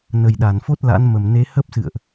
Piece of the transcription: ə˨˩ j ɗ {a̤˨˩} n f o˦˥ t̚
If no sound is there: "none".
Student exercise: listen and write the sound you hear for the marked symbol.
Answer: a˧˩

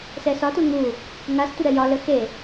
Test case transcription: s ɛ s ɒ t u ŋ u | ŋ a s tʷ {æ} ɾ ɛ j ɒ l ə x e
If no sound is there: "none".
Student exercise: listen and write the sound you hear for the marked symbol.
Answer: ə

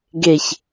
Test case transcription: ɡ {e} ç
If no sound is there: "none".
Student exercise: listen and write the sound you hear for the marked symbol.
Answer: e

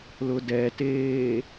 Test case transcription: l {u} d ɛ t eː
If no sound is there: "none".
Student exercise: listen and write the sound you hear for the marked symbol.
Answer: ʊ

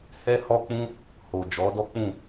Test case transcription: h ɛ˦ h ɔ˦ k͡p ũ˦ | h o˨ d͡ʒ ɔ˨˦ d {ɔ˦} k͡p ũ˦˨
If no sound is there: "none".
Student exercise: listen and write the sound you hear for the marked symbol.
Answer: ɔ˦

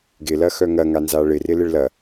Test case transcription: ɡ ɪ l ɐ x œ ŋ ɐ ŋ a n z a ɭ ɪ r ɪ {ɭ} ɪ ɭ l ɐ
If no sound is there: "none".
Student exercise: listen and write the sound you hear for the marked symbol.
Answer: l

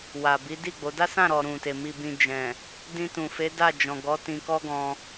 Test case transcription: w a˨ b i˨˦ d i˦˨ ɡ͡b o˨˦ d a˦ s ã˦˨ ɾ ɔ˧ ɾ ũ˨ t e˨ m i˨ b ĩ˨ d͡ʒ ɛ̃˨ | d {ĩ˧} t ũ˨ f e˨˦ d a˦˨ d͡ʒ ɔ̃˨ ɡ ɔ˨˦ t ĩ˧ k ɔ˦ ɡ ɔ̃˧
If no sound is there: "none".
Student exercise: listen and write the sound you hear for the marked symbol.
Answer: ĩ˧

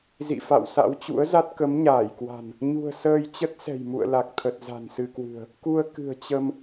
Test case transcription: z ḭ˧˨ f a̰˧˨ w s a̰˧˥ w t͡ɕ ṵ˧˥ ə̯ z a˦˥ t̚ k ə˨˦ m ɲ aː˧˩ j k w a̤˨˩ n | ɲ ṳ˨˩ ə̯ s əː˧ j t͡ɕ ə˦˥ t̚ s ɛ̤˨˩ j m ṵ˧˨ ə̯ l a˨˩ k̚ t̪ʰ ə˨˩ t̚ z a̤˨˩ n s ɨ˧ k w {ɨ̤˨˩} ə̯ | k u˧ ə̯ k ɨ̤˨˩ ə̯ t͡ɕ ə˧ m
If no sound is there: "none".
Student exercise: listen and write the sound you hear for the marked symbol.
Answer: ɨ̤˨˩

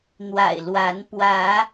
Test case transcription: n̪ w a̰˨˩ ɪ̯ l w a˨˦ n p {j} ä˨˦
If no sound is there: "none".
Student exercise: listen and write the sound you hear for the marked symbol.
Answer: w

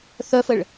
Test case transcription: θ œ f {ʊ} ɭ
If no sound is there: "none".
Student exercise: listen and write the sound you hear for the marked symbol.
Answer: ə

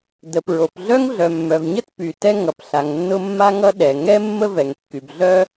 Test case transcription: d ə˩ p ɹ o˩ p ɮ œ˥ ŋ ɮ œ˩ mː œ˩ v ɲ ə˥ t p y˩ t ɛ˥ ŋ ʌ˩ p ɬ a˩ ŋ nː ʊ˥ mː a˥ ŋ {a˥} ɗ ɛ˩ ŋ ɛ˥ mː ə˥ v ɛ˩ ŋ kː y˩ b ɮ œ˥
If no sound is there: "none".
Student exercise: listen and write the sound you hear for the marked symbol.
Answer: ʌ˥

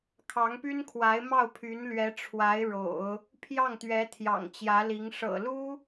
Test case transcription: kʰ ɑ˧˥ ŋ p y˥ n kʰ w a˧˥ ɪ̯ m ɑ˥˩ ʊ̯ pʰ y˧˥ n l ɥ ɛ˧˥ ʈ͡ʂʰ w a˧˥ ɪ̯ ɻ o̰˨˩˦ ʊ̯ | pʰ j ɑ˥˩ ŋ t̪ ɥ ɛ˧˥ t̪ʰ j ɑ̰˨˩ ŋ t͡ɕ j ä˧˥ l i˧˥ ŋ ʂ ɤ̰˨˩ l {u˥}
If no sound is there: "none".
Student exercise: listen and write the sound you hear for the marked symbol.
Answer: u˥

